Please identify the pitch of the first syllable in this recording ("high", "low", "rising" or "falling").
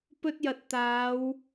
high